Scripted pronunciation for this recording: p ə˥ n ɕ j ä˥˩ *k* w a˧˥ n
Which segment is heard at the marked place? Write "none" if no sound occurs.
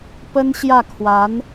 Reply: kʰ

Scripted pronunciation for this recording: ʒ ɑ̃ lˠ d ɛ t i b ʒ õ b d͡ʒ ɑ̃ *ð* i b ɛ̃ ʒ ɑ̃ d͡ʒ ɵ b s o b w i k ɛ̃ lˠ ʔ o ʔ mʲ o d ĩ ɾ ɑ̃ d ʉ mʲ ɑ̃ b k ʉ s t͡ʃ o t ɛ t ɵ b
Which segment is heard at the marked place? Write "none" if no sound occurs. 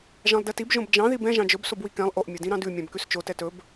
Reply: ð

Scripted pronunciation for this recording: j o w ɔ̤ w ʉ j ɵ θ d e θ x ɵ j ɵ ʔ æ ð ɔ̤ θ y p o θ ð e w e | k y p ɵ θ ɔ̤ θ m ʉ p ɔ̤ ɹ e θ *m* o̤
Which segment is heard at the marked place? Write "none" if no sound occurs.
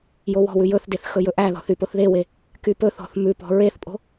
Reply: pʼ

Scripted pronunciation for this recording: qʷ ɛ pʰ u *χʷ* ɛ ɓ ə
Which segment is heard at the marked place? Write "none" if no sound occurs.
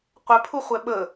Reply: χʷ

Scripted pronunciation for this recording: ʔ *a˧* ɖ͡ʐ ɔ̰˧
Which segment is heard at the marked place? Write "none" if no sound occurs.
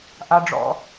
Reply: a˧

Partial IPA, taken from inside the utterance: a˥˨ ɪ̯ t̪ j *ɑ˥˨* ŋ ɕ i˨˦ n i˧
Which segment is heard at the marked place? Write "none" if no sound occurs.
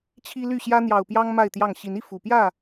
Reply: ɑ˥˨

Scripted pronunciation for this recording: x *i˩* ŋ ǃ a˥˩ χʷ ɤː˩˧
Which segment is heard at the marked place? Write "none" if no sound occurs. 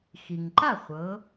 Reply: i˩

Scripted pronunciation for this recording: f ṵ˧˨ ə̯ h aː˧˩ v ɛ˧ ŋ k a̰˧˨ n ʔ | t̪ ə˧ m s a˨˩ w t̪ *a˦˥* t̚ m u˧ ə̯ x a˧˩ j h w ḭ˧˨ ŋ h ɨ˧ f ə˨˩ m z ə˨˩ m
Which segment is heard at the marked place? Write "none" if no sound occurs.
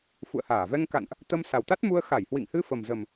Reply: a˦˥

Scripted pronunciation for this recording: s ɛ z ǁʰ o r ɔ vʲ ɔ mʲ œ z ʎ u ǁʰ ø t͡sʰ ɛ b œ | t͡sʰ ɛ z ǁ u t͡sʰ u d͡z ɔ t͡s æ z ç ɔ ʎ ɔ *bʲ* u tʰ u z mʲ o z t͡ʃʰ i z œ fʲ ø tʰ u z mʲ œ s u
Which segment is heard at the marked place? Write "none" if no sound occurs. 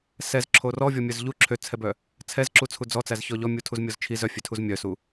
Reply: mʲ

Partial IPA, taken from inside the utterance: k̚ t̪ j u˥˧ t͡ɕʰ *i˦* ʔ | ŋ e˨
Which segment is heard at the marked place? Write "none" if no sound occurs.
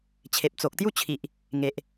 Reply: i˨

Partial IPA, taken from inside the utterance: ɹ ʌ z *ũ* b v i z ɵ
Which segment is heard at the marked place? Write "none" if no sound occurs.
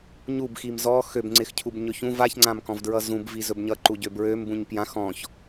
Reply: ũ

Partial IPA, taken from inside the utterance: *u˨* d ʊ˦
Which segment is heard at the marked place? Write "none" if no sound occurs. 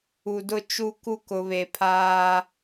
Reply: u˨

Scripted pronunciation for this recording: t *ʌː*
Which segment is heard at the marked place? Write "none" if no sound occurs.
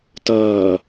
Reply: ʌː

